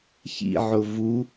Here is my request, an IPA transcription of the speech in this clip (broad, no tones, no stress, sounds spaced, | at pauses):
ç ḭ ʕ ʊ v u